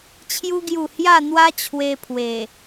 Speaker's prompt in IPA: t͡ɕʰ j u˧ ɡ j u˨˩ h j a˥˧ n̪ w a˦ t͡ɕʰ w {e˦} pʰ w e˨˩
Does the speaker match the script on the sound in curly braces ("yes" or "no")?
no